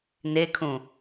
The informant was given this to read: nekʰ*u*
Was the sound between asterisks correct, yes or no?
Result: no